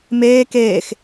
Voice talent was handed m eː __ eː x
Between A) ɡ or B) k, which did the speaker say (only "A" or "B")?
B